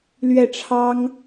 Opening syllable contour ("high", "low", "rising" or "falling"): falling